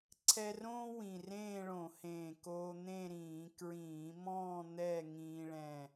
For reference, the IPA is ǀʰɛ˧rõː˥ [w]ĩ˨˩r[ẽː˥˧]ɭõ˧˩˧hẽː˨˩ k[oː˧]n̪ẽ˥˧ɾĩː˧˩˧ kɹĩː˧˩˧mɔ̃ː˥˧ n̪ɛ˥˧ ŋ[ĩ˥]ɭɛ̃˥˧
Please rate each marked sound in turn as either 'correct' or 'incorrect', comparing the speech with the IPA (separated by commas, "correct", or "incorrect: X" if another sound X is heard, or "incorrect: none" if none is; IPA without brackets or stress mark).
correct, correct, correct, incorrect: ĩː˥